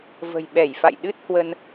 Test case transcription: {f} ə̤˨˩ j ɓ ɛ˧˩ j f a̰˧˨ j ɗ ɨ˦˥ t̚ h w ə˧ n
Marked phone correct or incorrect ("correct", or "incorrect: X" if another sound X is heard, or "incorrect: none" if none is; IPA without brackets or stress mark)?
incorrect: v